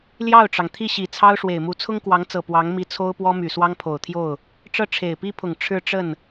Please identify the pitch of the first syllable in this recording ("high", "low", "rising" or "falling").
falling